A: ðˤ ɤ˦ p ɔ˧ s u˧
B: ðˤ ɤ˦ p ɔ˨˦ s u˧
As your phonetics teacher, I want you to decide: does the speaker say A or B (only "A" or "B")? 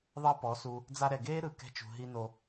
B